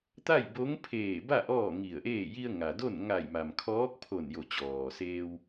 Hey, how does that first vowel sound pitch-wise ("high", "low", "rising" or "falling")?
falling